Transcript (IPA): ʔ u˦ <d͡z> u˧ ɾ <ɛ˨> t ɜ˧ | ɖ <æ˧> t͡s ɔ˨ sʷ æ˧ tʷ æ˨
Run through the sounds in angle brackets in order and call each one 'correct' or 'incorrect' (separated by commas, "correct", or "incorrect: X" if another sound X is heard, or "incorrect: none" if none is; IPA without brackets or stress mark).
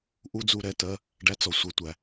correct, correct, correct